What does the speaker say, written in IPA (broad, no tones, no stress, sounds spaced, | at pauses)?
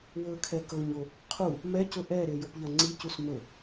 w ɵ kʰ ɛ k ɤ ɲ o | qʰ u | m ɛ c ɵ ʔ ɛ ɾ e j o p ʎ ɐ ŋ͡ǀ i c u s m ɵ